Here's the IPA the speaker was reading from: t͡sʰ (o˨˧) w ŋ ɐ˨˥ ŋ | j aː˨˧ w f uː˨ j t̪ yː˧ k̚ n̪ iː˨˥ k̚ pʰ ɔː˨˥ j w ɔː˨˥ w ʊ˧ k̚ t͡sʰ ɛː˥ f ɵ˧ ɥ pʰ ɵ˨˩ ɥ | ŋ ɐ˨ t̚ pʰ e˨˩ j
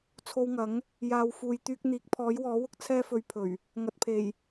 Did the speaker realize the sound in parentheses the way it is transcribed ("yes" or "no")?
no